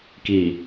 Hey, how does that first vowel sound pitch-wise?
low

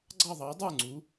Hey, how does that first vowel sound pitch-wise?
falling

